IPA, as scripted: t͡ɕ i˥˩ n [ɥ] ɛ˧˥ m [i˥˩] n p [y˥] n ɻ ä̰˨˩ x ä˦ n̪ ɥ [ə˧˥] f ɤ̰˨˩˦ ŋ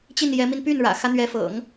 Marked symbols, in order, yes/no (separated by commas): no, no, no, no